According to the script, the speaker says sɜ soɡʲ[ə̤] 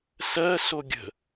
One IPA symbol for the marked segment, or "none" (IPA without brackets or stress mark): ə̤